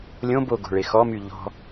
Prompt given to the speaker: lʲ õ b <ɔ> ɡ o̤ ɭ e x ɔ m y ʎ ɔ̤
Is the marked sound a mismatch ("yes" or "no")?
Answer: yes